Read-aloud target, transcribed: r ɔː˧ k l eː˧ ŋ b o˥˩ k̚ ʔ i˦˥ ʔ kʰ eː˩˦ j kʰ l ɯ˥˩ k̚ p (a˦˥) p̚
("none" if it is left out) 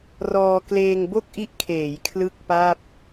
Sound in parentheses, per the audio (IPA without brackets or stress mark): a˥˩